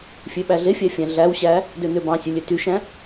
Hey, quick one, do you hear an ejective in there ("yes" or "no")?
no